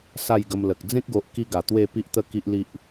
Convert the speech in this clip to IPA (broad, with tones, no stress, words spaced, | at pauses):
sa˥˧jɡə˧mlə˨k̚ d͡zẽ˦k̚ɡo˨ʔ ki˦ɡa˨˩ t̪we˥˧pi˦ʔt̪ə˥˧ki˦ʔ li˦ʔ